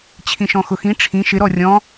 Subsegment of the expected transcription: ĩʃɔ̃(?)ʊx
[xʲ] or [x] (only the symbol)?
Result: x